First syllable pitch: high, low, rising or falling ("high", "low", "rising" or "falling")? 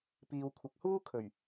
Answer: low